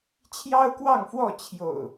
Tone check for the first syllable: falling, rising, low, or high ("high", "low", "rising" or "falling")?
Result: high